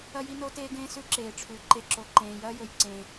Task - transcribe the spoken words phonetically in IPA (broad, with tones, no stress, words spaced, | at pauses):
ɐ˦ji˦no˦teː˦ ɡẽː˦sʉ˦ ǁeː˨ʈ͡ʂʰʉ˨˦ ǃe˨ǁo˨ ǃẽː˨jɐː˦jɵ˨j ǀẽ˦